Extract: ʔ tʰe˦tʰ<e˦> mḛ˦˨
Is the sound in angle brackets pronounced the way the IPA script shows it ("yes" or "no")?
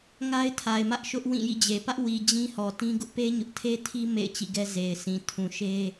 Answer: no